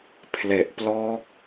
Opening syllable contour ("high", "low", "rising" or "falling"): low